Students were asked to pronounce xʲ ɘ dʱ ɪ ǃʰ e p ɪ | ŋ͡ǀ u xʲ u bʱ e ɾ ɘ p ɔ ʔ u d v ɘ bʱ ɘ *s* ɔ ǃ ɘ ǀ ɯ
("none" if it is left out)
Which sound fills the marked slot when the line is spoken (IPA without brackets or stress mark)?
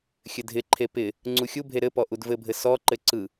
s